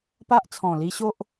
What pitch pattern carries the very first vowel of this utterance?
high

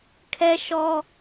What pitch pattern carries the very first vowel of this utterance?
high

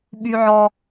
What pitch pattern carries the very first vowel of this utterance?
high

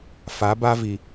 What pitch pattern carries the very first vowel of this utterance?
rising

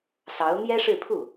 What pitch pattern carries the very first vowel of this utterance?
rising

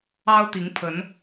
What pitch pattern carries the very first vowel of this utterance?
high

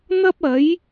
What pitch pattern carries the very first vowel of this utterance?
high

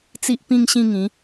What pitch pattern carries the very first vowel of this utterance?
high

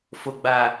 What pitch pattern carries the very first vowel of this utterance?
low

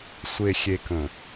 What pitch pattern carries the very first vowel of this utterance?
low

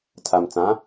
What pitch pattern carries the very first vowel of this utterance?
low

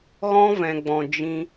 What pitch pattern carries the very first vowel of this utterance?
high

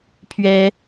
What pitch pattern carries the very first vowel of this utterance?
high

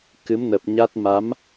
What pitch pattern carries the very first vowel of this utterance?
rising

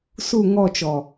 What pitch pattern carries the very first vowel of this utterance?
falling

